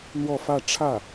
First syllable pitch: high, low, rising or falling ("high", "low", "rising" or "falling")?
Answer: falling